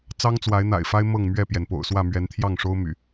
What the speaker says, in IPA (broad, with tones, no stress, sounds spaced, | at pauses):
t͡s ɑ˦ ŋ t͡s w a˨˦ ɪ̯ n̪ a̰˨˩ ɪ̯ f a˦ ɪ̯ m ɤ˥˨ ŋ m ɥ ɛ˥˨ p j ɛ˩ n p o̰˨˩ ʊ̯ s w ä˥˨ m ɥ ɛ˨˦ n t̪ʰ j ɑ˥˨ ŋ ʂ o˦ ʊ̯ m y̰˨˩